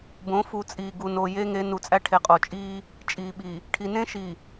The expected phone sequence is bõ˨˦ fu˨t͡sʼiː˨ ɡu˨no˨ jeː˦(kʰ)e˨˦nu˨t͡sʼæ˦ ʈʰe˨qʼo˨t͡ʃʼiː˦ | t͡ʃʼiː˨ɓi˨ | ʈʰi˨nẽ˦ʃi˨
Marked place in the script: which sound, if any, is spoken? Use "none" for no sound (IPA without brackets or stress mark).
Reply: ŋ